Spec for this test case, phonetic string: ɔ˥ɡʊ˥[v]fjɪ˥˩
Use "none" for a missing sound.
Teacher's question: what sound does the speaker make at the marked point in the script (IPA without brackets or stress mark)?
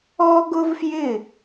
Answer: v